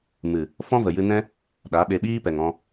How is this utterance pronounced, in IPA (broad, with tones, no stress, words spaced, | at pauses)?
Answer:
mɨ˨ | fɔ̃˦və˨jɨ˧nɛ̃˦ | ɗa˨˦ɓe˧ ɓiː˦pɛ˨ŋɔ̃˧